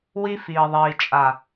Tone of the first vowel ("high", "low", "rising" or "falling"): high